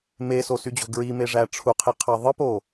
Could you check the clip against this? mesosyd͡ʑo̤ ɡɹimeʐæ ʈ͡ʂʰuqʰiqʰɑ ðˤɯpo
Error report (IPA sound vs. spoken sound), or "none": none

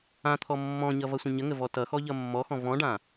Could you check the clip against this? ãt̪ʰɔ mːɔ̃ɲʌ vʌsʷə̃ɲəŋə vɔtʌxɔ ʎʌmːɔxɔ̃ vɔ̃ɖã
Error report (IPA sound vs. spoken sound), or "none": none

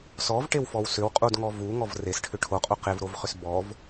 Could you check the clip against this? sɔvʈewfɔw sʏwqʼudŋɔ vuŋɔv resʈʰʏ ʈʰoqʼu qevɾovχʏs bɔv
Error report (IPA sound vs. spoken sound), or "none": none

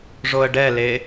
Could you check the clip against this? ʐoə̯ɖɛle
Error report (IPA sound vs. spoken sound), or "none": none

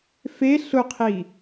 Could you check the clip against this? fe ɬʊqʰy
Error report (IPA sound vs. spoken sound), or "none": y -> i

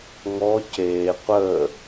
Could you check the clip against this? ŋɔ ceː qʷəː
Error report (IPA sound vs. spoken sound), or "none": none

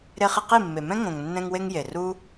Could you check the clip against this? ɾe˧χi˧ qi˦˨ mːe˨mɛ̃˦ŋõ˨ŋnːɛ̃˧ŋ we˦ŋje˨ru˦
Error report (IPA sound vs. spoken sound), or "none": none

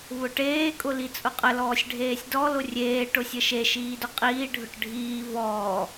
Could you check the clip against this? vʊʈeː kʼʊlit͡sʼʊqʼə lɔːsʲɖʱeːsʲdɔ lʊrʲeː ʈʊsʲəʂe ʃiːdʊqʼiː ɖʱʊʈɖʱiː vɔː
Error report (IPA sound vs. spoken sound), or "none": ʂ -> ʃ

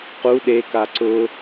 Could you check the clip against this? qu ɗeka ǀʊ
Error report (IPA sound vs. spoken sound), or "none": none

